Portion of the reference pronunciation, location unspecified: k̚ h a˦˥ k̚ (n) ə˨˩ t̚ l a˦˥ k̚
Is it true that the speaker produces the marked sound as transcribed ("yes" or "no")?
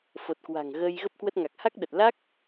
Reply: no